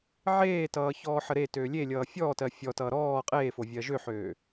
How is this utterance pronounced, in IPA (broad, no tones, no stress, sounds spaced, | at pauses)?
ʕ eː t ʌː ç ɔː ħ ə ɾ e t øː lʲ e lʲ ʌː fʲ ɔː t ɜ fʲ ɔ t ʌː ɾ ɔː qʼ eː f o vʲ ɜ ʒ ø ħ øː